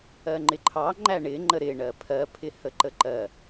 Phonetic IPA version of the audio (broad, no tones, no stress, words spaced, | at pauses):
ɜŋ͡ǃɪǃʰɑŋ͡ǃæ ɳɪŋ͡ǃə ɾɪ ɳɜpʰɜpʰɪ həǃəǃɜ